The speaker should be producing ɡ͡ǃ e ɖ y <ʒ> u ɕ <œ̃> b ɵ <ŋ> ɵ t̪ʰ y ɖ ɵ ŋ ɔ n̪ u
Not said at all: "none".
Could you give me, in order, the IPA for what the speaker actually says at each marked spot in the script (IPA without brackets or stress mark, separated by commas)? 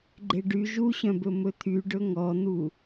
ʒ, œ̃, m